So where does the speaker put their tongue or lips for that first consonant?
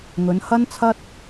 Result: velum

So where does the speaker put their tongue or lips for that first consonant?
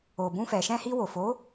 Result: lips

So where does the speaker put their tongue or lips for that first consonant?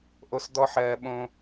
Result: throat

